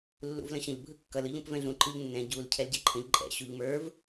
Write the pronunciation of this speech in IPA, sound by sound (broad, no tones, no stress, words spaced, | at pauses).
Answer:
lːṵvlə̃ɕə̃ʎ bʱɯkːʌl ɯʎũpvɛ̃ɮũ ǃɯʎnːɛ̃ ɟul cʰɛlɟɛǃʰə̃ʎ ǃʼɛ̰ ɕuʎmə˞v